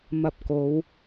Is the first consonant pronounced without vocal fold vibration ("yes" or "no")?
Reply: no